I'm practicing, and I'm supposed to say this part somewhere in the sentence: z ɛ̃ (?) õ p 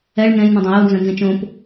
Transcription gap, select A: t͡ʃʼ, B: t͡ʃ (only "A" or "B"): B